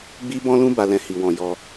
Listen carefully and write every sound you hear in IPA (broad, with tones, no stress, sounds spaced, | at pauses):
ɡ͡b i˦ b ɔ̃˦ l ũ˦ b a˧ l ɛ̃˧ h i˨ w ɔ̃˨ j ɔ˧